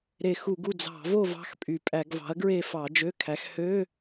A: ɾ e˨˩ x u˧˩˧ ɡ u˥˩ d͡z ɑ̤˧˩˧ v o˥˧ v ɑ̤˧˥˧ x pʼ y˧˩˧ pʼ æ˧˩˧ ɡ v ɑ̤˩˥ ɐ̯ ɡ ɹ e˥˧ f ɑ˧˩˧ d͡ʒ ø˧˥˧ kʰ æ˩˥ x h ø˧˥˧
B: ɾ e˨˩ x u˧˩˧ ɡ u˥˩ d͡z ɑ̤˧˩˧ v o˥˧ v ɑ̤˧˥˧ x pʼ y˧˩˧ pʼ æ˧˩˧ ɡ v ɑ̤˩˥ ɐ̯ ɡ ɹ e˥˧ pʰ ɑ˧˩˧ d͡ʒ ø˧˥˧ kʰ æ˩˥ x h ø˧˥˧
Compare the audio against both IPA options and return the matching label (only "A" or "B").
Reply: A